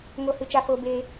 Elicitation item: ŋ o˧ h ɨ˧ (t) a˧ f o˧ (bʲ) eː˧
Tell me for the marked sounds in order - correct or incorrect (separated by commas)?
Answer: incorrect, incorrect